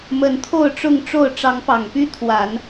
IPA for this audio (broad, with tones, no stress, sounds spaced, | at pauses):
m ə˨˦ n t̪ʰ o˥˨ ʊ̯ ʈ͡ʂ ʊ˥˨ ŋ ʈ͡ʂ o˥˨ ʊ̯ ʈ͡ʂ ɑ˨˦ ŋ p ɑ˨˩ ŋ p y˦ t̪ʰ w a˨˦ n